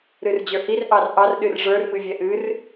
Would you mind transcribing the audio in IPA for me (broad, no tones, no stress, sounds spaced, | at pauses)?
ɾ ɨ r d͡ʑ ə˞ h i r ʔ ɑ r ʔ ɑ r ɗ ɨ r ʐ ə˞ r m ɨ vʲ ɛ ʔ ɨ r